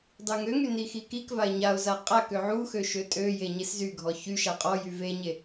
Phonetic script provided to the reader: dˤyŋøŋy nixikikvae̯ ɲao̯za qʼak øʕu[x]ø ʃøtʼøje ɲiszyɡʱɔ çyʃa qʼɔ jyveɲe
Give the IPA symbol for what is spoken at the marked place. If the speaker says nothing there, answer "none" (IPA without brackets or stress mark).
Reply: x